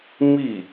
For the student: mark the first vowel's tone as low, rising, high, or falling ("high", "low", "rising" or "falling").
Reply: falling